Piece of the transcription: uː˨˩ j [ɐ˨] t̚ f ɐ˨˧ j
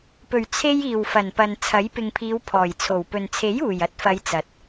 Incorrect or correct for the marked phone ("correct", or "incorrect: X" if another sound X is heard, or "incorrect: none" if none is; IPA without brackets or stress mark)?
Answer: incorrect: ɐ˥